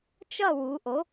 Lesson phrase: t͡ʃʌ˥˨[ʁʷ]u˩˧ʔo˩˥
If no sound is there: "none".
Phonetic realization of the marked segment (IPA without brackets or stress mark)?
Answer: w